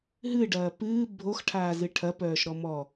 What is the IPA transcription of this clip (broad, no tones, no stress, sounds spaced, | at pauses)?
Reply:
ɦ ɨ ɖ ɐː p ɨː bʱ o x ʈʰ aː z ɨ ʈʰ ɐ p œː ʃ ɾ ɔ m ɔ